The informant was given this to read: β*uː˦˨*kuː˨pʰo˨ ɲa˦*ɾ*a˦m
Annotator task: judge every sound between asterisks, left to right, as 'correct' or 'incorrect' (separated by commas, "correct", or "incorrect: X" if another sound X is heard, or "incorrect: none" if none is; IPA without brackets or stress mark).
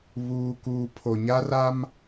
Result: incorrect: uː˨, incorrect: r